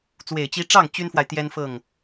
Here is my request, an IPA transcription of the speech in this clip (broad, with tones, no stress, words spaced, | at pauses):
t͡swe˨˩ɪ̯t͡ɕi˧˥ʈ͡ʂɑ˥˩ŋ t͡ɕy˥nfwa˨ɪ̯ t̪jɛ˥nfɤ˥˩ŋ